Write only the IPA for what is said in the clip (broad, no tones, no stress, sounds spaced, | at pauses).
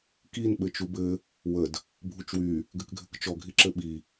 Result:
k i n ɓ ɘ t͡ʃ u b ɘ | w ə d | bʱ u t͡ʃ w y | ɡ ɘ k ɡʱ ɘ k t͡ʃ ɔ ɡʱ i ǁ ɘ ɓ i